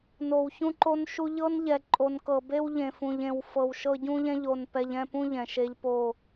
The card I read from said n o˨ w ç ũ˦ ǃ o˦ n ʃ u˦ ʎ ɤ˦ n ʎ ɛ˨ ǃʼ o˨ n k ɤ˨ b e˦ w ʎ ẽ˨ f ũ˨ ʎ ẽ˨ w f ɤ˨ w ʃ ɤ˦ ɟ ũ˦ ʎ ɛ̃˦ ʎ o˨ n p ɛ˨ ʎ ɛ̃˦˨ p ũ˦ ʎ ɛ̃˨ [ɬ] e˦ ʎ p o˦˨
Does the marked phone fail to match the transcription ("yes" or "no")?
yes